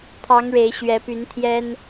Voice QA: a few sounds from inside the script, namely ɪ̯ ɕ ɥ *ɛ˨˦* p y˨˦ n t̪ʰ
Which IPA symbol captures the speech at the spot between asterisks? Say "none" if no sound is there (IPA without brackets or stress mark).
ɛ˨˦